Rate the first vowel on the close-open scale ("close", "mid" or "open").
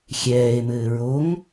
mid